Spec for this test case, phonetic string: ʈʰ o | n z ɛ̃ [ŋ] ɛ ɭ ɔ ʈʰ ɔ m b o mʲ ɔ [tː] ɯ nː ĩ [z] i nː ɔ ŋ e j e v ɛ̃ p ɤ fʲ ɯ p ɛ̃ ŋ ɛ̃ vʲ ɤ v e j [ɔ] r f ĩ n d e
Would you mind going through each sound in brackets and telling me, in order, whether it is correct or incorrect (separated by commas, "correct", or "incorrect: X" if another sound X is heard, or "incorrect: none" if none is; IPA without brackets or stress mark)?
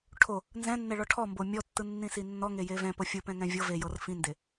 incorrect: nː, correct, incorrect: s, incorrect: ɤ